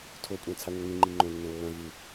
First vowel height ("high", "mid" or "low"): mid